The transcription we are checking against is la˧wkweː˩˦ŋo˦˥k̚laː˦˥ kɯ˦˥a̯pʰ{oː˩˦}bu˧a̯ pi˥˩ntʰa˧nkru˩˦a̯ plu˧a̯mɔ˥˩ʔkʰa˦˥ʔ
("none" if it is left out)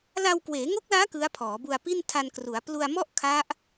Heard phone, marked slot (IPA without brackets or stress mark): ɔː˩˦